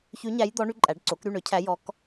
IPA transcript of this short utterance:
ç ʉ˧˥ ɲ æ˧˥ j d̪ ɔ˧˥ ɳ y˧˥ ǃʼ æ˩˥ ɖ ǀ o˩˥ k ɾ y˥˨ ɳ ø˩˥ cʰ æ˧˥ j ɔ˧˥ k

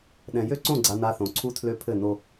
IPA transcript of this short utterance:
ɗ ɛ̃˨ j ø˦ ǀ õ˦˨ ɡ͡ǀ a˦ n a˦ θ õ˨ ǀʰ u˦ tʰ l ø˦ pʰ ɘ˦˨ n o˦

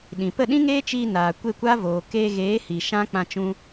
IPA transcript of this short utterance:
ɗ ĩ˨ p ə˦˨ ɗ ĩ˦ ŋ eː˦ t͡ʃ iː˧ n aː˨ kʷ e˦˨ kʷ a˦ v oː˨ k eː˧ ɣ eː˨˦ h i˨ ʃ ã˦ k͡p ã˧ t͡ʃ ũ˧

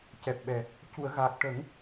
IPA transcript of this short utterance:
c ɛ˨˩ p̚ ɓ ɛ˨˩ | c u˨˩˨ ə̯ ɣ aː˨˩ k̚ ʈ ə˨˩˦ ŋ

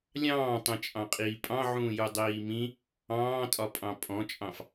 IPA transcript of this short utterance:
lʲ ɑ̃ː tˤ ẽ t͡ʃʼ ɑ̃ qʼ iː pʼ ɑ̃ ʕ ũː j u dˤ iː m ĩ | ɑ̃ː tʼ ɒ pʼ ɑ̃ pʼ ɔ̃ t͡ʃʼ ɑ̃ f

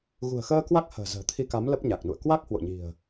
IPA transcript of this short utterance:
ɣ ṳ˨˩ ə̯ x əː˧ k w a˦˥ k̚ h ə̤ː˨˩ z ə̤ː˨˩ t̪ʰ i˧ k a˨˦ m l ə˦˥ p̚ ɲ a˨˩ k̚ n ṵ˧˨ ə̯ k w a˦˥ k̚ h w o̰˧˨ ɲ i̤˨˩ ə̯

